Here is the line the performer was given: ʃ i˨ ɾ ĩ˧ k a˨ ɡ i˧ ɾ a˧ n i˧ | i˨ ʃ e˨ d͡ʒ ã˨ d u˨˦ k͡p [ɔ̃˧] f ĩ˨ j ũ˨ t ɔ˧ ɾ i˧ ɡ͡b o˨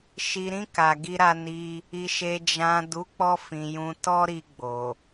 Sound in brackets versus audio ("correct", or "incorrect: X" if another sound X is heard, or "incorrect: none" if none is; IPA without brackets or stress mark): incorrect: ɔ˧